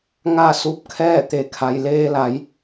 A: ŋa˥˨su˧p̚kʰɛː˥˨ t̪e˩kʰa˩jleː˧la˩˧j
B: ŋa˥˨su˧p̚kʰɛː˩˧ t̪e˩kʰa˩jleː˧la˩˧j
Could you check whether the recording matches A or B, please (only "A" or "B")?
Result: A